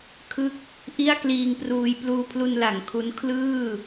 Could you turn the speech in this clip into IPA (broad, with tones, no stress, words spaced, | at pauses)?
kʰɯ˦˥k̚ | ʔi˥˩a̯kliː˧ŋpruː˧j pluː˧pʰlu˧nla˩˦ŋ kʰu˦˥n kʰlɯː˥˩